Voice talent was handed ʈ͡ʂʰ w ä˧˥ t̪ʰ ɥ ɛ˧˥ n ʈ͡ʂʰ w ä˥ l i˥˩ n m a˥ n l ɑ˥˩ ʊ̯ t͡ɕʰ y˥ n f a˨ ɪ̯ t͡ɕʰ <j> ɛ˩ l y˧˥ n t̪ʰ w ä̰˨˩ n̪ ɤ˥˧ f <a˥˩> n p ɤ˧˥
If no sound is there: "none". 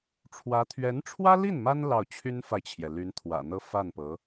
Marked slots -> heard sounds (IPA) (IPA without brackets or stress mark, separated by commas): j, a˥˩